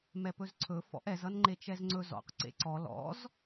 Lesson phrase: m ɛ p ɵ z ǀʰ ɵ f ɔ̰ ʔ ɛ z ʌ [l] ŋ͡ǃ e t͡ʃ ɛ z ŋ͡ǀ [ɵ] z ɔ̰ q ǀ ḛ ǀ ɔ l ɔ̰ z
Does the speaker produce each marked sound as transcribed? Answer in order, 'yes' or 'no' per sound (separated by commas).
no, yes